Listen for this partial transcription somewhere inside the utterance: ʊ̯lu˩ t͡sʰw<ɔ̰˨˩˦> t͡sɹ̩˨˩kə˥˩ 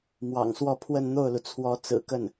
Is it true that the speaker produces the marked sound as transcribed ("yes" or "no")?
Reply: no